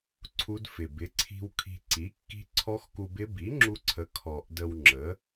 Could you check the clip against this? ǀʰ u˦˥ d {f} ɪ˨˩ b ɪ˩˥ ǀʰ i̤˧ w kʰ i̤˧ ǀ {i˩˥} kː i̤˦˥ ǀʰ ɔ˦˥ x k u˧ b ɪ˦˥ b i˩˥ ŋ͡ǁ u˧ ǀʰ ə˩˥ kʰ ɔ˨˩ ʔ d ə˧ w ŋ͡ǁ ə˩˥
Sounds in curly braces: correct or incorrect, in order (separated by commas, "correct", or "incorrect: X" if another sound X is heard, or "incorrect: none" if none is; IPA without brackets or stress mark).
correct, correct